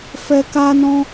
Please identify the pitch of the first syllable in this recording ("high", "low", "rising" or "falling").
high